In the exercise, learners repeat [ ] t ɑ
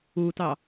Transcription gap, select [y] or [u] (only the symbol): u